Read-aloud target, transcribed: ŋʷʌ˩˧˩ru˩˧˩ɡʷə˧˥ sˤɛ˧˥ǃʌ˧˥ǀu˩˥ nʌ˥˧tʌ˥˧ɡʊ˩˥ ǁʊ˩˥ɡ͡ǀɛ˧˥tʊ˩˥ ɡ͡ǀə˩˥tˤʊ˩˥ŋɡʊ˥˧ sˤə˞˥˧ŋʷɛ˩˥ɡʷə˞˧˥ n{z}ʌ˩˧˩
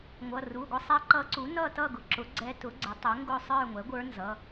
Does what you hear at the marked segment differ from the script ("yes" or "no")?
no